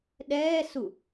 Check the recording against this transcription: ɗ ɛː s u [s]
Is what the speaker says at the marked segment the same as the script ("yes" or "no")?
no